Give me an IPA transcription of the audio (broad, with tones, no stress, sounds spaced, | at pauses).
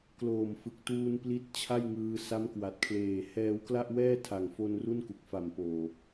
k l oː˨˩ m f ɯ˨˩ k̚ t uː˧ n p l i˦˥ t̚ t͡ɕʰ a˥˩ j ŋ ɯː˧ s a˦˥ m k w a˨˩ t̚ kʰ l eː˨˩ h ɛː˧ w k l a˥˩ ʔ w ɛː˥˩ tʰ a˨˩ ŋ f o˧ n r u˥˩ n k u˨˩ k̚ f a˨˩ m p oː˨˩